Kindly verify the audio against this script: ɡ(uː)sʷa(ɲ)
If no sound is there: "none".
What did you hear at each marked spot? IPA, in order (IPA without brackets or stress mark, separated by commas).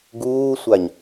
uː, ɲ